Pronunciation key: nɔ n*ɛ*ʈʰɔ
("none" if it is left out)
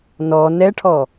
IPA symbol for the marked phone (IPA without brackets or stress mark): ɛ